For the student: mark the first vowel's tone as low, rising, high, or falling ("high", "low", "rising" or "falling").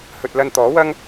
low